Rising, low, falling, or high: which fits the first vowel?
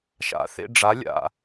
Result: rising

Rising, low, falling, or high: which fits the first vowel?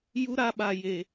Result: high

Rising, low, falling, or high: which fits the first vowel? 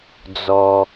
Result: low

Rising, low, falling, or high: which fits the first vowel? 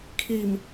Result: low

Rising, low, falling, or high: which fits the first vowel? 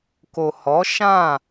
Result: low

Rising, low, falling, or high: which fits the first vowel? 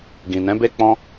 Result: low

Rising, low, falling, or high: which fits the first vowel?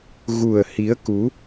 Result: low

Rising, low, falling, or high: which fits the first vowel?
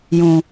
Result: low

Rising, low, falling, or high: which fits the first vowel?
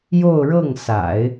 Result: falling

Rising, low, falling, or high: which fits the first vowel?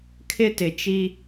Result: high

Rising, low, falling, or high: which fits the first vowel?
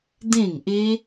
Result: falling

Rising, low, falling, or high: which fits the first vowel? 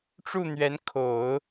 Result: falling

